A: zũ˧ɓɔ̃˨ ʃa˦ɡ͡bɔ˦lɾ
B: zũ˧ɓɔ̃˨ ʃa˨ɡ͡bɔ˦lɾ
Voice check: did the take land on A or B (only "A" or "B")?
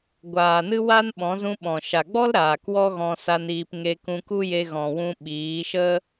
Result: B